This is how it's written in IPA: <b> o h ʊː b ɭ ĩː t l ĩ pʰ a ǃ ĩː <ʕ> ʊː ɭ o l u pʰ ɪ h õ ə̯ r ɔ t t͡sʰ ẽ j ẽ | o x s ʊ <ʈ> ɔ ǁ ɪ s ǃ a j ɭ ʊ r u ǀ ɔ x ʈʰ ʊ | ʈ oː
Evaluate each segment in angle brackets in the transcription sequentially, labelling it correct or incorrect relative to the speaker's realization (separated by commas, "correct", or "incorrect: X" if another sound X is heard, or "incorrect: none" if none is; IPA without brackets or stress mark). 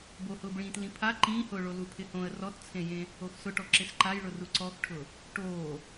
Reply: correct, incorrect: h, correct